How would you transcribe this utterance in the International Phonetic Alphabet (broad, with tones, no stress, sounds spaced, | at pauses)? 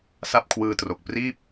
s a˥˩ p̚ kʰ w ɯː˧ t r o˨˩ k̚ p r iː˥˩ p̚